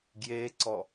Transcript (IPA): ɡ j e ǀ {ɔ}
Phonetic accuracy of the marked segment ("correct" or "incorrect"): correct